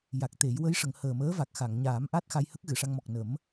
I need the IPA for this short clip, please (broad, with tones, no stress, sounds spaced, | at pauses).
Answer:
j a˨˩ k̚ t̪ e˨˩˦ j w ə˧˥ j ʂ ə˨˩˨ ŋ h əː˨˩ m əː˧˥ v a˨˩ k̚ x a˨˩˨ ŋ ɲ aː˨˩˦ m ʔ a˦˥ t̚ x a˧ j h ə˦˥ k̚ ɣ ɨ˨˩˨ ʂ a˧ ŋ m ɔ˨˩ k̚ n ə˨˩˦ m